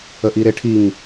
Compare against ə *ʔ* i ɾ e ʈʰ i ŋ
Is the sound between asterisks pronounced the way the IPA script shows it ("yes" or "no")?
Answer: yes